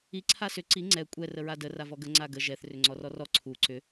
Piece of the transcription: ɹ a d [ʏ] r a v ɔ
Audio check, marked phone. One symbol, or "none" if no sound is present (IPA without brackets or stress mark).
ə